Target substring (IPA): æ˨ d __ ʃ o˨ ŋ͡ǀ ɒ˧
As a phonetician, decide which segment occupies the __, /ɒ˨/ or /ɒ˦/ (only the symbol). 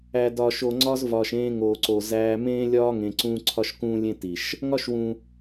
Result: ɒ˨